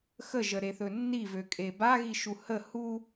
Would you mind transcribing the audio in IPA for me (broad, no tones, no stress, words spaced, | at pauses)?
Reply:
xəʒəɾeθɵ nːivøkʼe baɣiʃu hə hu